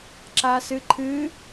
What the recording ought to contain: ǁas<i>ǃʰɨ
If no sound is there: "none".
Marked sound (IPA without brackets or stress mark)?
ɨ